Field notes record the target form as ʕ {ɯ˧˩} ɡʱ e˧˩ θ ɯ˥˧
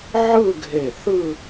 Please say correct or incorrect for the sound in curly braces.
incorrect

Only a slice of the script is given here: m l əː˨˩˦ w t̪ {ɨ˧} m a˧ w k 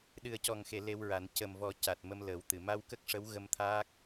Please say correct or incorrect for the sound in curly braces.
incorrect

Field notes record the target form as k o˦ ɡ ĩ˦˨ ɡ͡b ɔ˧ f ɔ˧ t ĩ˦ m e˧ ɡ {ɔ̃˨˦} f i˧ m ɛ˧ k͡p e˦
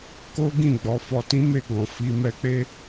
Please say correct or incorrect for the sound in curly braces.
incorrect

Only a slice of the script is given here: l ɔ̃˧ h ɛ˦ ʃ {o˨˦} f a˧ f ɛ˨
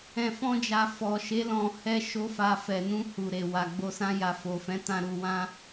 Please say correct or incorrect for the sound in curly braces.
incorrect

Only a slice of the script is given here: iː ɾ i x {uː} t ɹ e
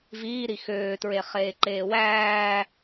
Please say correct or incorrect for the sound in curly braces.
incorrect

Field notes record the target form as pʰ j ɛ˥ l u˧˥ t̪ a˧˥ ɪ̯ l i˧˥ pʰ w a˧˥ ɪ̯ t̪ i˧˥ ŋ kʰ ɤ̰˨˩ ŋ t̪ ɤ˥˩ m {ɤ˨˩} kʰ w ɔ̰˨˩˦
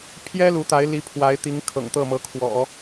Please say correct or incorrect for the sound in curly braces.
incorrect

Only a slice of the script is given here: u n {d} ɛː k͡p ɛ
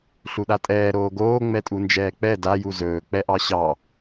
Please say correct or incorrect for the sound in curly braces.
incorrect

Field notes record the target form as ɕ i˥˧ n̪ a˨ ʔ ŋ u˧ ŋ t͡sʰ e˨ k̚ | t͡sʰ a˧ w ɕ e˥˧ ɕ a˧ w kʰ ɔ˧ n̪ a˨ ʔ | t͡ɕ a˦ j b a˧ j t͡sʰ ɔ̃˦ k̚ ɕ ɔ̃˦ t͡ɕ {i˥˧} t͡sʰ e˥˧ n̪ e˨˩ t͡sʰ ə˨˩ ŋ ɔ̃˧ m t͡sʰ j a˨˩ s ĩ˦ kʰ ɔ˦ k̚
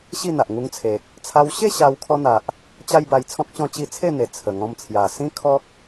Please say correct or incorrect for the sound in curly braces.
correct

